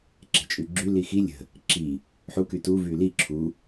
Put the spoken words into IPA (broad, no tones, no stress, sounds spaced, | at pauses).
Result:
ǁ e̤ t͡ʃʼ y ɡ͡ǁ y l i x i lʲ ə̤ | ǁ i | ħ u k y t u v y l i ǁʰ u